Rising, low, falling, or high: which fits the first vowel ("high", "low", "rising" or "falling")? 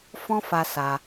high